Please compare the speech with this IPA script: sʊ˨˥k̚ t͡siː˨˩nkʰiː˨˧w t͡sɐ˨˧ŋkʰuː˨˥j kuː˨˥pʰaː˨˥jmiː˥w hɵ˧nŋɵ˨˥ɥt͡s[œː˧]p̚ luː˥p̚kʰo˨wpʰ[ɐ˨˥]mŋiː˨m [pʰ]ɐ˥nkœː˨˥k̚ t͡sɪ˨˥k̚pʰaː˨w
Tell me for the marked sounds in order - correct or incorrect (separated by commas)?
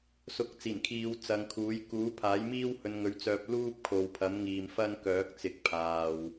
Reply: correct, correct, incorrect